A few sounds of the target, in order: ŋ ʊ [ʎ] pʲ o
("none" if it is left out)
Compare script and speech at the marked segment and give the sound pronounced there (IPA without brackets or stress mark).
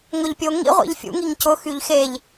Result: ʎ